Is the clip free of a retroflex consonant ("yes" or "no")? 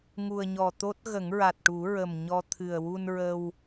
no